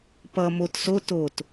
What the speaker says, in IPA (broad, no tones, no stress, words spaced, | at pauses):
pʌ mot so tot